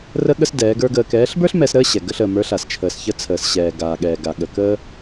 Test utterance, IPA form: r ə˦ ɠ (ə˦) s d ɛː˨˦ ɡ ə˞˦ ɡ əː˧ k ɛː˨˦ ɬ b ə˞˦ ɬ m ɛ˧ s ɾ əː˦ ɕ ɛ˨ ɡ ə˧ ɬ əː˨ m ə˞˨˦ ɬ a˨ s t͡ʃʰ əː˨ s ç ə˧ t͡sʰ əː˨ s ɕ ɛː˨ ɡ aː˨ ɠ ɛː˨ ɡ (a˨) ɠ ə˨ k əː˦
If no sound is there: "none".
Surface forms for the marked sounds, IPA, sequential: ə˦, a˨

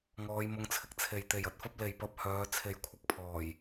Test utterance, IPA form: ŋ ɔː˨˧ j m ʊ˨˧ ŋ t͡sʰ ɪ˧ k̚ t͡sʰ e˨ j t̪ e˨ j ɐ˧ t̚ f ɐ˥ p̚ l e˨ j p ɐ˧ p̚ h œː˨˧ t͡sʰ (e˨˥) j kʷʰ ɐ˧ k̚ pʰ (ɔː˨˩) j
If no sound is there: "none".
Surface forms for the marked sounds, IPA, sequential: e˨, ɔː˨˩

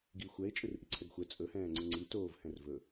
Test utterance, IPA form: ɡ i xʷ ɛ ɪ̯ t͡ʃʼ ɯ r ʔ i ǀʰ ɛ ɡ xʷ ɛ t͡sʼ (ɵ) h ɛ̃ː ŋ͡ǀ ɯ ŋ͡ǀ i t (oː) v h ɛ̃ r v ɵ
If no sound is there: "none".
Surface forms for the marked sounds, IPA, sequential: ɵ, oː

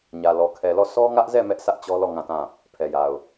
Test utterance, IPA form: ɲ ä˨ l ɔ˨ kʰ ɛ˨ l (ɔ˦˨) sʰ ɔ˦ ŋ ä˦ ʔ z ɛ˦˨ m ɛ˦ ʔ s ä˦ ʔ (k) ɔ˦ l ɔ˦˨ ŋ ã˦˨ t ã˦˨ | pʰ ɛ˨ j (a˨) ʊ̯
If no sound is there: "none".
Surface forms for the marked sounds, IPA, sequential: ɔ˦˨, t͡ɕ, a˨

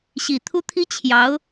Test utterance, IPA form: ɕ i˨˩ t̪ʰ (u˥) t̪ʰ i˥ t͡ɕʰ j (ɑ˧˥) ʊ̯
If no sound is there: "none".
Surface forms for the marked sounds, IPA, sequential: u˥, ɑ˧˥

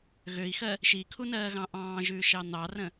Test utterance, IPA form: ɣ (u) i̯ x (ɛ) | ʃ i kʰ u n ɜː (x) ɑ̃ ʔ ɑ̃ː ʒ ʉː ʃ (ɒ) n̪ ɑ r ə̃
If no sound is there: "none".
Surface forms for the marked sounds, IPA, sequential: ø, ɜ, ɣ, ɑ

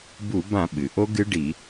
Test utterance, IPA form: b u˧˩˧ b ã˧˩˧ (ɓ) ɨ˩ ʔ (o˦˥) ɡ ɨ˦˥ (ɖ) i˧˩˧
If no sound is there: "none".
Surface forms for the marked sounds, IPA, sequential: ɓ, o˦˥, ɖ

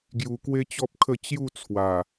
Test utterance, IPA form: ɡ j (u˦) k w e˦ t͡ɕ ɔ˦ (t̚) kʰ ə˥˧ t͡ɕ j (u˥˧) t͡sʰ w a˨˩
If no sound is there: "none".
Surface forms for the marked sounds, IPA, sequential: u˧, p̚, u˥˧

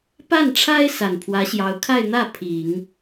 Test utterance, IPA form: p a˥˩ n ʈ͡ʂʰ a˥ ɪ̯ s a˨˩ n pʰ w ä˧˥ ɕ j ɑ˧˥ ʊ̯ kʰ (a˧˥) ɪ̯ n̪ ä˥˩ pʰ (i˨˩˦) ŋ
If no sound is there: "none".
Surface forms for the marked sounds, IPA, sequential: a˥˧, i˨˩˦

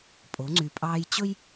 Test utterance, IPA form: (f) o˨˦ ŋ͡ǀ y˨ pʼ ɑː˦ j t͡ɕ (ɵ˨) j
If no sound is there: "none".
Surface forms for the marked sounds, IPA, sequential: pʼ, ɵ˦

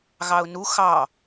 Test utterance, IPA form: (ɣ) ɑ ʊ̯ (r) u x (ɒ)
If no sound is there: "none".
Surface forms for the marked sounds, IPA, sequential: ɣ, n, ɑ

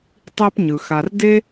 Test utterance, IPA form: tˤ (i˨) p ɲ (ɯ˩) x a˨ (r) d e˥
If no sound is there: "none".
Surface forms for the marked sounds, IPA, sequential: i˦, ɯ˩, r

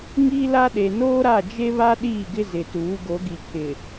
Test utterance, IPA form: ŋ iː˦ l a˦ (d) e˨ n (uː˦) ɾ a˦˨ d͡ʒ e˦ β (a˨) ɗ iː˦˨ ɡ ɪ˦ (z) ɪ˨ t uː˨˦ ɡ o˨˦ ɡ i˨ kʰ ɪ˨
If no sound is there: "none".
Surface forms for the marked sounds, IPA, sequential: ɗ, oː˦, a˦, z

